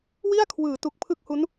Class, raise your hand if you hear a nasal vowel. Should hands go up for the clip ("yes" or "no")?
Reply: no